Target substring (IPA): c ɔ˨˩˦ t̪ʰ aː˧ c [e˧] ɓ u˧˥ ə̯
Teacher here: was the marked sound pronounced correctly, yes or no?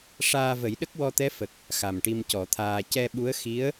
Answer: no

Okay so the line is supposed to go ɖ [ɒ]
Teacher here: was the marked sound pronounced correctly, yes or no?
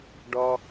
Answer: yes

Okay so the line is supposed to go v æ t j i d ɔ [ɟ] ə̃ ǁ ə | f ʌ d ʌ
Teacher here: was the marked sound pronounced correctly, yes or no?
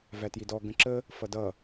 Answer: no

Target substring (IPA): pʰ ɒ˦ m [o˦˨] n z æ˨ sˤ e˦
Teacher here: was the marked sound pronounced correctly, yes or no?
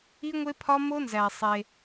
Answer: no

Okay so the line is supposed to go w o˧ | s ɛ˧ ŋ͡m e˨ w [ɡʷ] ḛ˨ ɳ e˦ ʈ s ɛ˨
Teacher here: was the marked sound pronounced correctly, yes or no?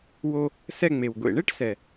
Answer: yes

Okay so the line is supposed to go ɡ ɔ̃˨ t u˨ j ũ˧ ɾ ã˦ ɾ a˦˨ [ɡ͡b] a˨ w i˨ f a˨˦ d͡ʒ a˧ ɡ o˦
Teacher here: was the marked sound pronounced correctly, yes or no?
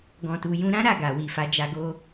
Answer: no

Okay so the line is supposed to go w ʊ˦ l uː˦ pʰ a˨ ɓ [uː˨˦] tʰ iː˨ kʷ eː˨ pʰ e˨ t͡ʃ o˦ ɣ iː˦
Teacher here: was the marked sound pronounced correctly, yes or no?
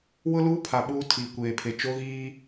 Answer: no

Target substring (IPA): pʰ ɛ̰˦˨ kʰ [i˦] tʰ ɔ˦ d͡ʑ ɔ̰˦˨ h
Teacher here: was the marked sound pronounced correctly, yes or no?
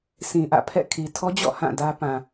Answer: no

